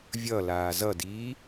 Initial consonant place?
labial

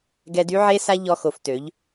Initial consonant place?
velar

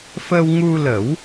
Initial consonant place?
labial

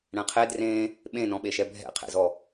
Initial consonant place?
retroflex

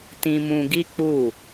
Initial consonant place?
alveolar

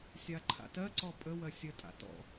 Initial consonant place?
alveolar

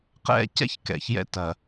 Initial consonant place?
uvular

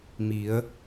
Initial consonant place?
labial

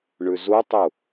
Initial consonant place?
retroflex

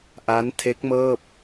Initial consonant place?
glottal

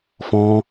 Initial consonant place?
labial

